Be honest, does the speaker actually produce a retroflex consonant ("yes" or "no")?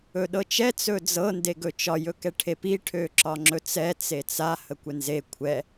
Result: yes